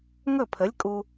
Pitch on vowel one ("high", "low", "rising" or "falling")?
falling